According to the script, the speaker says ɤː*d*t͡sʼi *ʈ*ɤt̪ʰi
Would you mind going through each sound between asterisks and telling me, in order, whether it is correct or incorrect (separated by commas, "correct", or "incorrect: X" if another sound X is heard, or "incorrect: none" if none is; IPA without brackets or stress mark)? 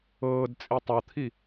correct, incorrect: tˤ